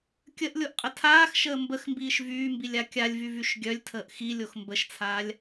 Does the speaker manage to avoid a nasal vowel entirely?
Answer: yes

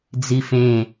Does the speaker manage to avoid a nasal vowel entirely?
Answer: no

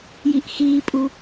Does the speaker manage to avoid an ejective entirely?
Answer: no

